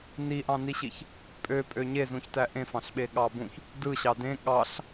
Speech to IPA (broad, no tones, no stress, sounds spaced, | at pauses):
n i ʔ ɑ̃ n i ɕ i ç | pʼ ø pʼ ø ɲ e z ũ ç t æ ʔ ẽ f ɑ̃ ɬ ɓ e ɠ ɑ b ũ ç | d ɯ ɕ ɑ d ẽ ɠ ɑ ɬ